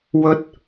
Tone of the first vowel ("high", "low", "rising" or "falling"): high